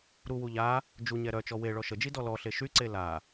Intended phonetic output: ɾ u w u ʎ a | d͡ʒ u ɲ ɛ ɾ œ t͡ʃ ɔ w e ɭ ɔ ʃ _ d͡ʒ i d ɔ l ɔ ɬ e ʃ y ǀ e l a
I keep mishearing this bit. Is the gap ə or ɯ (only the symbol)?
ə